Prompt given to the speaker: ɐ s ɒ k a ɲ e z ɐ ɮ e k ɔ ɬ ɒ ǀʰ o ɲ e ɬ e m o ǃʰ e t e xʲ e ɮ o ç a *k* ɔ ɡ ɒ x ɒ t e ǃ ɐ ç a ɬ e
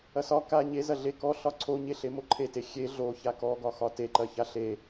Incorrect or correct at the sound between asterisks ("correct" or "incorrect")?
correct